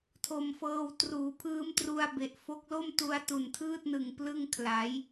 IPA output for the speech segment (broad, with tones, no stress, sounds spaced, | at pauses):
tʰ o˧ m f ɤː˧ w t r uː˩˦ pʰ ɯː˦˥ m t r u˧ a̯ b e˨˩ ʔ f o˦˥ k̚ l o˥˩ m t u˧ a̯ t u˨˩ n tʰ ɯː˥˩ t̚ n ɯ˨˩ ŋ p l ɯ˥˩ ŋ kʰ l a˩˦ j